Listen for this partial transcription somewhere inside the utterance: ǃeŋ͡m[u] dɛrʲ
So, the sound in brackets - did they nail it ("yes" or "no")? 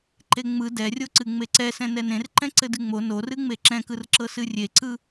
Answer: no